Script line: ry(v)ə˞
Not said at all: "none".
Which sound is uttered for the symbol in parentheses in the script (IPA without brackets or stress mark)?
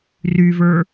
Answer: v